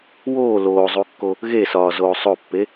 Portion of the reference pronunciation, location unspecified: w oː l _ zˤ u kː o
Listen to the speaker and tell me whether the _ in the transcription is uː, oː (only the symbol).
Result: oː